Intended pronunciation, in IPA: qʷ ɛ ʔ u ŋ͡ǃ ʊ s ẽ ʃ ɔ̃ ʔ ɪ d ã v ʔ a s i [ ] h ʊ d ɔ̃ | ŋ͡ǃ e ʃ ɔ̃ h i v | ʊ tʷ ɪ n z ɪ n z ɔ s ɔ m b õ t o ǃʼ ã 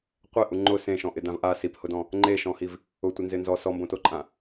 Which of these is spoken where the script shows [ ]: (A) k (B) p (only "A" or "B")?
B